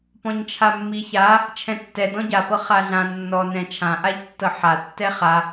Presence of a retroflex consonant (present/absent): absent